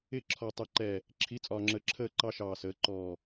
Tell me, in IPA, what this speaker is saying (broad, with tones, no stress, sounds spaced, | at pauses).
ɪ˦˨ ǁʰ ɔ˨ tˤ ɛ˨ ǃ ɛ˨ | ǁʰ i˨˦ t͡sʼ ɒː˨ ŋ͡ǁ əː˨ ǁʰ əː˦˨ ǃ ɑ˦ ʃ ɑː˨ s əː˨˦ ǃ ɔː˨